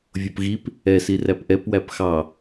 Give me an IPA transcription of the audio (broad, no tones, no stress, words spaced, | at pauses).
vʲopɣip | ɛ siræpʔɛp wæpxɑ